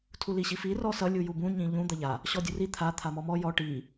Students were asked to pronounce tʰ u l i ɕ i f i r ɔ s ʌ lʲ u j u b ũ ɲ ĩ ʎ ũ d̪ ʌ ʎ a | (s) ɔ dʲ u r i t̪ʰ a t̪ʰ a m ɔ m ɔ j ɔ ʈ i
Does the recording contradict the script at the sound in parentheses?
yes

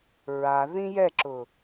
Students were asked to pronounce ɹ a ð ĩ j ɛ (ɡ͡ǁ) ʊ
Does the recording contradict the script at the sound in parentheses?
yes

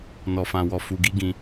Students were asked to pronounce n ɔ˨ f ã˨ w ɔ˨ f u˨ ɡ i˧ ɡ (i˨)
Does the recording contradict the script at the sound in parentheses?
yes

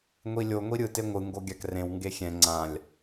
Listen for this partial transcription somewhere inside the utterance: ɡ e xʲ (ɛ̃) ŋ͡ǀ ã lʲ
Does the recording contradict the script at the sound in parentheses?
no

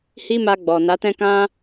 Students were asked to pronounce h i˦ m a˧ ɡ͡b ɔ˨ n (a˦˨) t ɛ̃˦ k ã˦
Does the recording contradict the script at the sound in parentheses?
yes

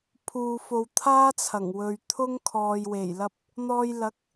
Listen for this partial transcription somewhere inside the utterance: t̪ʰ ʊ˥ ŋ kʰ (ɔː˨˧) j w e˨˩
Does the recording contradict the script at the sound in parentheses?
yes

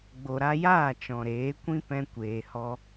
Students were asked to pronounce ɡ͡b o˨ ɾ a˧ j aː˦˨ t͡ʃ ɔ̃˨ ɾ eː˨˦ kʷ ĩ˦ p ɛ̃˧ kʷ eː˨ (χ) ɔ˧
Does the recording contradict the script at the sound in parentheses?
yes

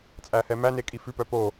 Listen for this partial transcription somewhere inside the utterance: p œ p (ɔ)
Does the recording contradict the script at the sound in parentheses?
yes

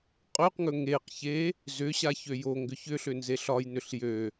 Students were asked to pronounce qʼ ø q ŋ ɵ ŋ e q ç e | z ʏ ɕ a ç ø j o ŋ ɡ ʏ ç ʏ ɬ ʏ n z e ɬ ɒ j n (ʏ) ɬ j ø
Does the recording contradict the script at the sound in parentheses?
no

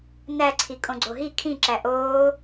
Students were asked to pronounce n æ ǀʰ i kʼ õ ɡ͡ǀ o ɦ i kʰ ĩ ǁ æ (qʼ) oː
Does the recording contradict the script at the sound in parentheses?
yes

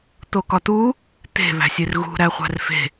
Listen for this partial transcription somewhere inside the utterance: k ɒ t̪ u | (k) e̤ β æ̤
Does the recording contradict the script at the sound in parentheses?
yes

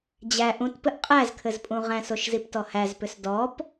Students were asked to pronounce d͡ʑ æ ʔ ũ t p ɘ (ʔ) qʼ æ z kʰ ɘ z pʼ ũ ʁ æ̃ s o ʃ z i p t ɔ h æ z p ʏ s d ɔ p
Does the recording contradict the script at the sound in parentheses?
no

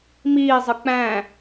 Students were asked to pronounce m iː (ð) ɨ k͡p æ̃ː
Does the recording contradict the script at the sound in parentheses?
yes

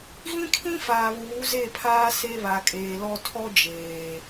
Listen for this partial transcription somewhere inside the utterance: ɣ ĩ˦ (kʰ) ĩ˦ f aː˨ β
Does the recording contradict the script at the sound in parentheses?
no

